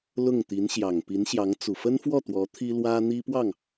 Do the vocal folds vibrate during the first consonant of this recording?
yes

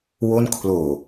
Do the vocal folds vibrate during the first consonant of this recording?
yes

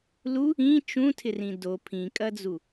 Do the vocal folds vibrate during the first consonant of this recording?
yes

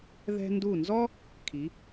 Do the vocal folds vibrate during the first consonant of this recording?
yes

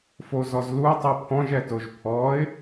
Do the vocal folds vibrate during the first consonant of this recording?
no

